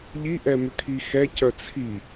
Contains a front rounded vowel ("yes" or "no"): yes